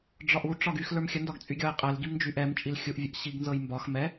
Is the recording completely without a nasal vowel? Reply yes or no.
yes